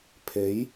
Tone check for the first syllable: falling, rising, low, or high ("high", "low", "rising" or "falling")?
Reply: rising